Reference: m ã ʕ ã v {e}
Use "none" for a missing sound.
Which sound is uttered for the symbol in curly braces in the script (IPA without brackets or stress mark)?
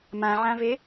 e